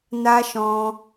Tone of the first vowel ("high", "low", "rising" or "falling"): high